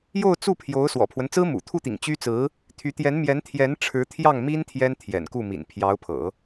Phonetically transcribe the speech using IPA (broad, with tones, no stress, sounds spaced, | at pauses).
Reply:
j o˥˧ ʊ̯ t͡s u˥˩ pʰ j o˧˥ ʊ̯ s w ɔ̰˨˩ pʰ w ə˦ n t͡s ɹ̩˥ m ṵ˨˩ t̪ʰ u˥˩ t̪ ḭ˨˩ ŋ t͡ɕ y˥ t͡s ɹ̩˧˥ | t̪ʰ y˧˥ t̪ j ɛ˧˥ n m j ɛ˧˥ n t̪ʰ j ɛ˧˥ n ʈ͡ʂʰ ɻ̩˧˥ t̪ʰ j ɑ˥˩ ŋ m i˥ n t̪ʰ j ɛ˥ n t̪ʰ j ɛ̰˨˩ n k u˥˩ m ḭ˨˩ n pʰ j ɑ˧˥ ʊ̯ pʰ ɤ̰˨˩˦